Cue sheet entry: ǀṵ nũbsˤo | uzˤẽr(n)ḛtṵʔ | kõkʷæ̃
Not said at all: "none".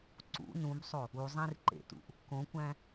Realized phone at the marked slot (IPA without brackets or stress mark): ǃ